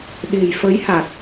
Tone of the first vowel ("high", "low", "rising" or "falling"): low